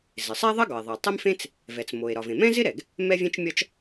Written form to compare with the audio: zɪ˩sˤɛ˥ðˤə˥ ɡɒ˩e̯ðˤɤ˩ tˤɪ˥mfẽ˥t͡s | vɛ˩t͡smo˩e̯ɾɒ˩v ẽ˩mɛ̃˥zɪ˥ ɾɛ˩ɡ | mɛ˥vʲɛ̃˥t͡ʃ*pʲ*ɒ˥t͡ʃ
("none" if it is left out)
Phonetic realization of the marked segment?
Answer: mʲ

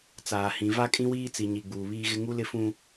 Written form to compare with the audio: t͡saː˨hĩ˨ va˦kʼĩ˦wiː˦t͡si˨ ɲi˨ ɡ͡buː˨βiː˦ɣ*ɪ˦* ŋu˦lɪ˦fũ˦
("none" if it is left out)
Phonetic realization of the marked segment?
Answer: ɪ˦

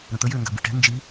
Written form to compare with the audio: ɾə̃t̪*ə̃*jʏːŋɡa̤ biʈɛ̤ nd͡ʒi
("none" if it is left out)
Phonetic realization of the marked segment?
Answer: ə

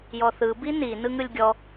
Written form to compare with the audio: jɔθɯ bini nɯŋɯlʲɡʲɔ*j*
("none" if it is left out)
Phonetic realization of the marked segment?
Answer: none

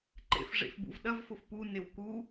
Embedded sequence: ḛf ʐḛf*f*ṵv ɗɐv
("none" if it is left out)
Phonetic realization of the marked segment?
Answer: b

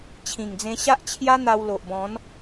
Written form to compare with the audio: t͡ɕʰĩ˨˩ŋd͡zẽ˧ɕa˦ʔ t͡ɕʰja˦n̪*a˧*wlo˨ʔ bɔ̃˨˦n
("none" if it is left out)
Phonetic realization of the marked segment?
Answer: a˧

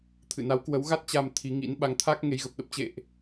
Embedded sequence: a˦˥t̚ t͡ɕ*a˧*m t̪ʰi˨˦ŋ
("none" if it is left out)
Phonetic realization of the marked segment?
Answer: a˧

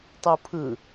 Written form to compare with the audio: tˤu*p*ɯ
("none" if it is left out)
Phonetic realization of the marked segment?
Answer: pʰ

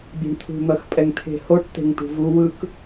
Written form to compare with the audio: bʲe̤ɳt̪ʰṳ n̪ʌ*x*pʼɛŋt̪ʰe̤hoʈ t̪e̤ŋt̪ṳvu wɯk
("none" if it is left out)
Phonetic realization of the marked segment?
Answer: x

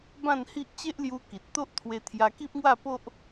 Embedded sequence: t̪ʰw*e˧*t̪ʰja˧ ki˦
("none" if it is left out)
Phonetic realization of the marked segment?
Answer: e˧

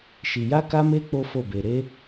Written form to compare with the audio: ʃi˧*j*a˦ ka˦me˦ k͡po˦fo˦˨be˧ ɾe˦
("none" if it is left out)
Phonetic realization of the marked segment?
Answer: j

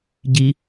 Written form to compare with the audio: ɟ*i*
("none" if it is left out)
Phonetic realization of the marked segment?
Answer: i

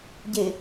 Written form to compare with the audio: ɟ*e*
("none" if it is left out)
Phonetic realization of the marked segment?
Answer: e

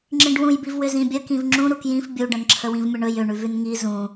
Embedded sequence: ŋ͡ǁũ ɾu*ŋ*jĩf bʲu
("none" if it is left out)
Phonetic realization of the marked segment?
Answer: k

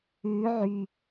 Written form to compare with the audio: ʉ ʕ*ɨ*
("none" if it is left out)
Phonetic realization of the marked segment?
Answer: y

